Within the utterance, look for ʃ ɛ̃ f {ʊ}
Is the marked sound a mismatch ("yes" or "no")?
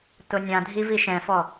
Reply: yes